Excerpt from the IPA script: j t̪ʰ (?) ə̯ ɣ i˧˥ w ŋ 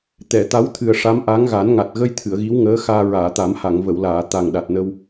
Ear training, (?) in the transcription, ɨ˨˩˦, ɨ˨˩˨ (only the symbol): ɨ˨˩˨